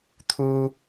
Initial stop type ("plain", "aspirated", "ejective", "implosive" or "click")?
aspirated